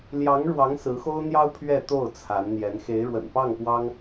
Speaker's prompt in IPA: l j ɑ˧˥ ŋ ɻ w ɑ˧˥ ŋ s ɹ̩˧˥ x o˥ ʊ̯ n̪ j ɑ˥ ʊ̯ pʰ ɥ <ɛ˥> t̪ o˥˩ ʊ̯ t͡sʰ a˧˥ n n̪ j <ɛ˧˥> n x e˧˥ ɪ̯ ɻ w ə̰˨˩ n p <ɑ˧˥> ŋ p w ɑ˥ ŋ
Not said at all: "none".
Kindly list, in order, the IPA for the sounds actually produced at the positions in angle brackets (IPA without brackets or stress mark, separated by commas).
ɛ˥˧, ɛ˧˥, ɑ˥˩